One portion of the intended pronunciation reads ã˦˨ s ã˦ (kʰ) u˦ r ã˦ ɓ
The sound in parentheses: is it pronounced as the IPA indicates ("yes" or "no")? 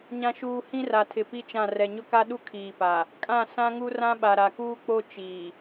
no